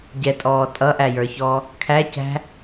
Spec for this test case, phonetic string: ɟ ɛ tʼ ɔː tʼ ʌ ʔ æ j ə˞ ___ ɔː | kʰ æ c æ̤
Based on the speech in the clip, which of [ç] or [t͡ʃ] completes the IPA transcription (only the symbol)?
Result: ç